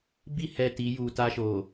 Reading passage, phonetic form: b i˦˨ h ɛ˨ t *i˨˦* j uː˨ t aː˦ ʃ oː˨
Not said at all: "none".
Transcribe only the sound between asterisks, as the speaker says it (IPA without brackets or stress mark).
i˨˦